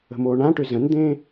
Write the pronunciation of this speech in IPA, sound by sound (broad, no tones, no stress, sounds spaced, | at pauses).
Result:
ə̤ m oː ɳ ã ʈ ʏ z ə̃ n d̪ ẽː